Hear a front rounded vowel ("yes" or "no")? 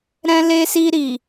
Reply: no